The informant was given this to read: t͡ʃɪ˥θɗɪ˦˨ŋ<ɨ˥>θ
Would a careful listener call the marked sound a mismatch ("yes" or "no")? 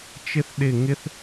yes